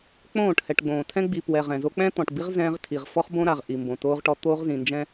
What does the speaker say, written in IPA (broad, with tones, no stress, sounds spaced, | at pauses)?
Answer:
k͡p õː˦˨ ʈ h ɛ˨ ʈ ɡ͡b õː˨ tʰ ɛ̃˦ ɡ͡b i˨ p w ɛ˨ ʁ ɛ̃˨ z o˦ k͡p ɛ̃˦ t̪ ɔ̃˨ ʈ b i˦ ʁ z ɛ̃ː˦ ʁ tʰ i˨ ʁ f ɔ˦ χ b õ˦ ɾ a˨ ʁ ʔ i˨ m b õ˨ t oː˦ ʁ ʈ ɔ˦ t̪ oː˦ ʁ z ĩ˨ n d͡ʒ ɛ̃˦